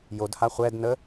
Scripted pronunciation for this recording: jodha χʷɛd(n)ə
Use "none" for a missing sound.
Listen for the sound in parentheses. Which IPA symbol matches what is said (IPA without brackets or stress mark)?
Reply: n